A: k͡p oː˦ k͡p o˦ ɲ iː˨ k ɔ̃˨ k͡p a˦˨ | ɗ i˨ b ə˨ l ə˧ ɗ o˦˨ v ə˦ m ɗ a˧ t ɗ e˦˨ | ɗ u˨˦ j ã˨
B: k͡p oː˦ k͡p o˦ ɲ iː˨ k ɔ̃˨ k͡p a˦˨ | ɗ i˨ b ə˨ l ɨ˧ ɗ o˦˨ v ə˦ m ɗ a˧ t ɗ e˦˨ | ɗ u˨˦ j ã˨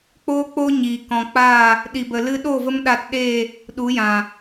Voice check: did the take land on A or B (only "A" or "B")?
B